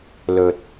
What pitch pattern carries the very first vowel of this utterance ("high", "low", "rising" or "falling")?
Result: low